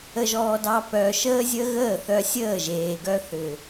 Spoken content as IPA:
ə˧ʒɔː˧dɑ˧ pœ˨ ʃəː˦zʲə˦ ɣəː˦˨θœ˧sʲəː˦˨ʒeː˨ ɡœ˦θʏ˨

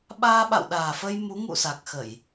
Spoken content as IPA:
ɓaː˧ɓa̰˧˨wɗaː˨˩fə˧j mu˨˦ŋṵ˧˨sa˨˩k̚xə˧˩˨j

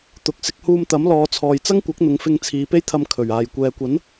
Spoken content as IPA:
t̪ʊ˨k̚sɪ˧k̚huː˧m t̪ɐ˨˥mlɔː˨˧t͡sʰɔː˨j t͡sɐ˥ŋkʷɐ˨˥k̚n̪ʊ˨˧ŋ fɪ˧ŋt͡sʰiː˨˧pe˥jt̪ʰɐ˧m kʰɵ˨˩ɥ aː˨˩jkʷɛː˨kʷɐ˨˥n

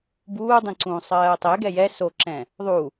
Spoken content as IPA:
buːdˤĩǀũː sˤɜːtˤɛ ɡɛjɛ soǁɛ̃ | ðˤu

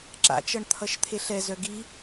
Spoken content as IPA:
ǁa̰t͡ʃʌɳ t̪ʰʌʃt̪ʰeɬɛzœ ɡi

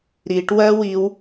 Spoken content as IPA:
ɾiʈ wɜwiw

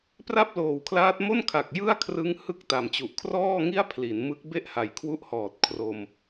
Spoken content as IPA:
pra˥˩p̚loː˨˩wkʰlaː˦˥t̚ mo˥˩nkʰa˨˩k̚ jɯ˥˩a̯kʰrɯ˦˥ŋ hɯ˥˩k̚ta˨˩mt͡ɕu˨˩ʔ kʰrɔː˥˩ŋi˥˩a̯ pʰli˩˦n mɯ˦˥k̚ be˥˩ʔha˨˩jkʰwu˦˥ʔhɔː˨˩t̚ kʰro˧m

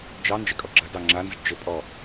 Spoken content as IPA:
d͡ʒɑ nd͡ʒɛkʼɔɡ͡ǁɐdɑ ŋ͡ǁanzɘɖ d͡ʒɘ pʼɔ

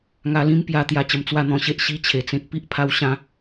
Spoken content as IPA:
ŋa˧lĩ˦m pja˧ t̪ja˧t͡ɕə˧m t͡swa˥˧n̪ɔ̃˧ɕe˦ʔ ɕi˦t͡ɕʰe˨˩t͡sẽ˦k̚ pi˦ʔpʰa˧w ɕã˧

